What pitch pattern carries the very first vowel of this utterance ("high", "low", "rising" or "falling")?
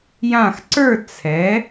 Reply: falling